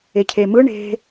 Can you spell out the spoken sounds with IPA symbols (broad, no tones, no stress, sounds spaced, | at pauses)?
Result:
e cʰ e m ɯ ɳ e̤